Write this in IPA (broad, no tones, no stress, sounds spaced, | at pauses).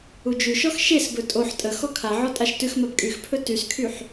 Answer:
u d͡ʒ ʉ ʃ ɔ x ʃ e s b ɵ tʼ o ħ tʼ ə x ɔ kʰ a ʕ ɔ tʼ a ʃ t ʉ x m a b kʼ y x pʰ ɵ t y s kʰ y ħ